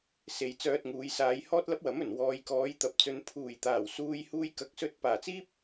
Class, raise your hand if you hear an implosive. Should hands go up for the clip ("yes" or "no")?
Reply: no